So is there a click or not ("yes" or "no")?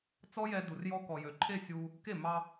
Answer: yes